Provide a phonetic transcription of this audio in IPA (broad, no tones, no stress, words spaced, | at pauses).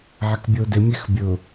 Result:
ʕɛkbʲodɪ mʲɛxbʲʊ